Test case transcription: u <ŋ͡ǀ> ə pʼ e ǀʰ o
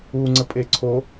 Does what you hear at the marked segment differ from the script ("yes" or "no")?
no